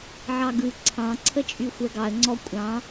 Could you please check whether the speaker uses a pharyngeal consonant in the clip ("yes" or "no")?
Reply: yes